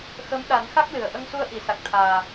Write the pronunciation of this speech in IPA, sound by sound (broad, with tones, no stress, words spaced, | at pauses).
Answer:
xə˧˥m ɗa˨˩˦nxa˦˥k̚ lɨ˨˩˨ə̯ ʔə˧ŋsu˧ə̯ʔi˨˩˨ sa˨˩k̚t̪ʰaː˨˩